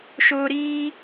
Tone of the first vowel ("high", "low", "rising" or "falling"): high